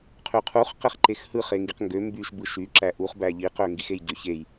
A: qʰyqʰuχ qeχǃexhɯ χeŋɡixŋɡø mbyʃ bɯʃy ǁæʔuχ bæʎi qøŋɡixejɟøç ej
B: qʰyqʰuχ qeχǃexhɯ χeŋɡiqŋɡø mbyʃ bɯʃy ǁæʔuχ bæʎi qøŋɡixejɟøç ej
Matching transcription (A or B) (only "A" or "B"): B